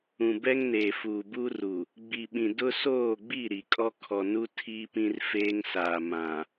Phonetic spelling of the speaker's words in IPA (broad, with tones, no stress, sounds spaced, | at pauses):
ũ˨ b ɛ˦ ŋ n eː˨ f uː˨ b u˦ r u˨ | ɡ͡b i˨ ɓ ĩ˨ d ʊ˦ s oː˦˨ ɡ͡b i˦˨ ɾ i˨ kʼ ɔ˦ kʰ ɔ˨ n u˦ tʰ iː˦ p ĩ˦ r f eː˦ ŋ s aː˨ m ã˨